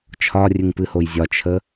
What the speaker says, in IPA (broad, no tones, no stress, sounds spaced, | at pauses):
t͡ʃʰ ɒ rʲ ɨ ŋ p ɨ h o j zʲ ɒ t͡ʃʰ ə